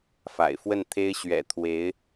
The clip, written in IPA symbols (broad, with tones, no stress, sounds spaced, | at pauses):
f a̰˨˩ ɪ̯ f w ə˥˩ n t̪ʰ e˥ ɪ̯ ɕ ɥ ɛ̰˨˩ t̪ʰ w e˧˥ ɪ̯